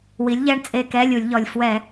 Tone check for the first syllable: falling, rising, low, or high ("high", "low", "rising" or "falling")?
rising